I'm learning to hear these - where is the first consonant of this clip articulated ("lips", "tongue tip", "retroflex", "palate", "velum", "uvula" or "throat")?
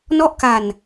tongue tip